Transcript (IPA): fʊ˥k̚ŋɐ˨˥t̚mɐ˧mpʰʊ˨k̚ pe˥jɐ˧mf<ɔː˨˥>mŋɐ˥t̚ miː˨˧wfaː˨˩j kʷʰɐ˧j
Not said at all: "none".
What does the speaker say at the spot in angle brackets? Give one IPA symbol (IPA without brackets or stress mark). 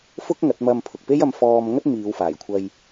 ɔː˧